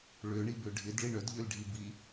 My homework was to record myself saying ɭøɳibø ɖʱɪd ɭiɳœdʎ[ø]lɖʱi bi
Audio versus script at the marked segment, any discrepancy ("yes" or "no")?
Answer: no